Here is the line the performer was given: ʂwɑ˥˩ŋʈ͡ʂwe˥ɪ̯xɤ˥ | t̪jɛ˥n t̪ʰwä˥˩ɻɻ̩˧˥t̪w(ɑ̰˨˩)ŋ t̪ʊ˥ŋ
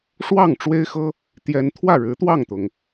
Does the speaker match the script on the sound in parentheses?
no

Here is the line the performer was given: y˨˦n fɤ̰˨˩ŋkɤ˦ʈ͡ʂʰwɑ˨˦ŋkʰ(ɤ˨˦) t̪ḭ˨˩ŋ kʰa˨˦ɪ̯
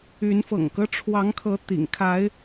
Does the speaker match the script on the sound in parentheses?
yes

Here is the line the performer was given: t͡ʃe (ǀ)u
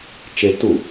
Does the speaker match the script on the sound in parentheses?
no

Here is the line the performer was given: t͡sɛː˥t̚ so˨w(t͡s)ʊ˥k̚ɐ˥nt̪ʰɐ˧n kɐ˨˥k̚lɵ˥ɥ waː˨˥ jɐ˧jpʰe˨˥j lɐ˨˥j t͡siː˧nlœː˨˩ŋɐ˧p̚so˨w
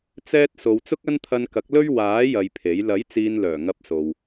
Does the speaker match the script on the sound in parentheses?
yes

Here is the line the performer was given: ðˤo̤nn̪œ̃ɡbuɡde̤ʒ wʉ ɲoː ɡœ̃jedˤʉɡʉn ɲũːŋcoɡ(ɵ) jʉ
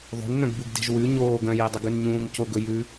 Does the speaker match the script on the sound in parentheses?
yes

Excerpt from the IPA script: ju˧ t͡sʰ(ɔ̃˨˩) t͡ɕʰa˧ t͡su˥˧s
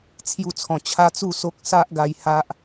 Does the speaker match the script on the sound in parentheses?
yes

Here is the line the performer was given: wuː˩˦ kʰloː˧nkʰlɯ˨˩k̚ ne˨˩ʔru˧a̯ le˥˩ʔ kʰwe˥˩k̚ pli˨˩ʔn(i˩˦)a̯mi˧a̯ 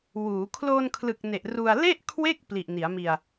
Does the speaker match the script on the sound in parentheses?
yes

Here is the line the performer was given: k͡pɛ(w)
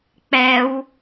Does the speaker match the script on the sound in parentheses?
yes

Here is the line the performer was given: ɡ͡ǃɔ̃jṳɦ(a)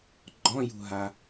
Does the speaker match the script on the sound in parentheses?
yes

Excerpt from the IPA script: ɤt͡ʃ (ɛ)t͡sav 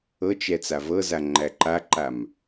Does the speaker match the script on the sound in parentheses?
yes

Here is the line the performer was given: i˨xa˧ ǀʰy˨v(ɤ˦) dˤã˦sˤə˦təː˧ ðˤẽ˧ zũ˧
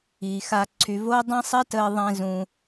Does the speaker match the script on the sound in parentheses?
no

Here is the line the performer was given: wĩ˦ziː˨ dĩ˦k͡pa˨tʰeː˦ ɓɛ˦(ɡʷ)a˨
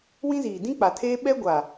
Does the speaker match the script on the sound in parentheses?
yes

